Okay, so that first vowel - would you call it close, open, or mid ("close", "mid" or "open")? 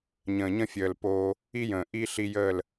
mid